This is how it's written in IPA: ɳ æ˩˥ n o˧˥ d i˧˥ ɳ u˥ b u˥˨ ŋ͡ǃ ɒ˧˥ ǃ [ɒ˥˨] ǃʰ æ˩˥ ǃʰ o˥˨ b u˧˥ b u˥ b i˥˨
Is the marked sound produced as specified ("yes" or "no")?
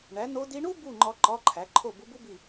no